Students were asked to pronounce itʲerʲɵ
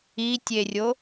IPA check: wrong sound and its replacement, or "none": ɵ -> o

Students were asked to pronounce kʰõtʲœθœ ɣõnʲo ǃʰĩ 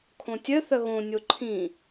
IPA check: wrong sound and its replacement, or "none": none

